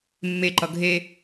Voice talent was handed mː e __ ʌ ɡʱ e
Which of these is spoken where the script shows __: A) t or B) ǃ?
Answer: B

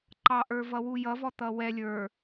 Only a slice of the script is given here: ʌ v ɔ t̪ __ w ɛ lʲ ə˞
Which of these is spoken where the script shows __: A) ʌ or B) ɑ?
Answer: A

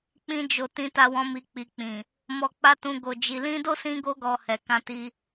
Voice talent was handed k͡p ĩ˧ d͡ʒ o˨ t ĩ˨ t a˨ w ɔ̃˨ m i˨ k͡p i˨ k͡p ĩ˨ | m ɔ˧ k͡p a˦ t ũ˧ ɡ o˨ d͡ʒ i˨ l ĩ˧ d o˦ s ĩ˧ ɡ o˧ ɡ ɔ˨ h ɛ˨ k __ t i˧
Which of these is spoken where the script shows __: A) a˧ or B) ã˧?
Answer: B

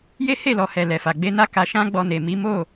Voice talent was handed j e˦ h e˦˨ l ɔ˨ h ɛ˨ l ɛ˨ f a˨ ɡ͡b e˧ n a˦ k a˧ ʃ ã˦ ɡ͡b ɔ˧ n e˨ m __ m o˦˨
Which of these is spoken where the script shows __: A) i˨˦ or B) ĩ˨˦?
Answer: A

